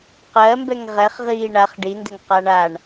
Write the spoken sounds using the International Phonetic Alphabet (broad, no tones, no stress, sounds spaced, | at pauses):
q ɜ m b ɛ ŋ ʁ ɛ χ ʁ iː ɳ a χ ɖ i n d ɘ ŋ q a ɳ a ɳ